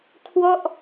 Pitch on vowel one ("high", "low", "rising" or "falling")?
falling